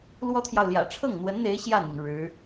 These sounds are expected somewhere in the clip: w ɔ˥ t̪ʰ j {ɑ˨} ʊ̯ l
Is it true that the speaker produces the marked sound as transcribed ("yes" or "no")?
yes